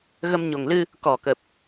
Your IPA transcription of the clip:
ɣ ə˧ m ɲ o˨˩ ŋ l ɨ˧ | k ɔ˨˩ k ə˨˩ p̚

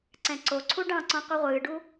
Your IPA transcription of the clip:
ǀ ɛ̃ ǀ o ǀʰ u ɖ ɑ̃ ǀ ɔ̃ qʷ ɨ ʁʷ ɨː ɖ u

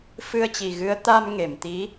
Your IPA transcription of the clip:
f ɨ˧ ə̯ t͡ɕ i˨˩ ɣ ɨ˨˦ ə̯ t̪ a˧ m ŋ e˧˩ m t̪ i˨˦

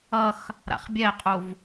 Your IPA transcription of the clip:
ʌ x | ɾ a̰ χ bʲ ɛ qʼ u v

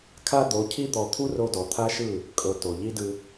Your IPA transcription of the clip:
kʰ a˦ d̪ o˨˦ cʰ i˦ d̪ ɔ˨ t̪ʰ u˦ r o˧ d ɔ˨ t̪ʰ a˦ ʃ ɯ˦˨ | kʼ ɤ˧ t o˨ ʎ i˦ d ɯ˧

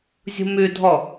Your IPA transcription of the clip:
zʲ ṳ m ʉ dʱ ɔ

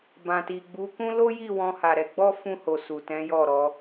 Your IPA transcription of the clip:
b ã˨ t i˨ ɡ͡b u˨˦ k ũ˦ l o˦ j i˦˨ w ɔ̃˧ h a˨ ɾ ɛ˧ ɡ͡b ɔ˦ f ũ˧ h o˨ s u˨ t ɛ̃˨˦ j ɔ˦˨ ɾ ɔ˨˦

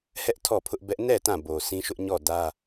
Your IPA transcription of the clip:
h ɛ˦ ʔ tʰ ɔ˦˨ pʰ ʊ˦ ʔ b ɛ˦ ʔ n ɛ˦˨ t ã˦˨ b o˨ sʰ ĩ˦ ʃ ʊ˦ ʔ ɲ ɔ˦˨ d ä˦

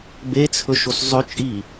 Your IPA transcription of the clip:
b e t͡sʰ ɵ ʃ o s zˤ ɵ t͡ʃʼ i

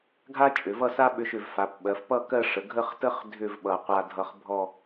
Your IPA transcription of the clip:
ɡʱ a˥ t͡ʃʼ ʏ˩˧ v ʌ˥˧ s a˥ ɓ ʏ˧ ʃ ʏ˧˩ v f a˩˧ p ɓ ɜ˩˧ f p ʌ˥˧ k ɜ˥˧ ʂ ə˩˧ ɡʱ ə˥˧ χ t ə˥ χ dʱ ʏ˥˧ v ɓ ʌ˧˩ qʷ a˧ dʱ ʌ˧ χ bʱ ɔ˥˧

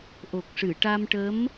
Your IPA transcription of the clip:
ʔ o˨˩ k̚ ʂ ɨ˨˩˨ ʈ a˧ m ʈ ə˧˥ m

